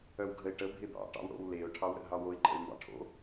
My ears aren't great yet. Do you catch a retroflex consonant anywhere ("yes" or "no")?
yes